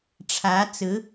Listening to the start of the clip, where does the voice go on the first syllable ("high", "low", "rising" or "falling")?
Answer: rising